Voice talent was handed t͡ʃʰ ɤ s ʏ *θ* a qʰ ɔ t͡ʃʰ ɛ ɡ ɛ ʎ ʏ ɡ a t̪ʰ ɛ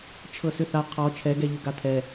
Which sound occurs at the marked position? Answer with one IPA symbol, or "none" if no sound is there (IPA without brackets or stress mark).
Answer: θ